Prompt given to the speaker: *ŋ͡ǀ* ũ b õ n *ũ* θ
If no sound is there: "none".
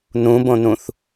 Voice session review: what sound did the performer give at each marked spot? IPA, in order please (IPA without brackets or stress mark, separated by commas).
n, ũ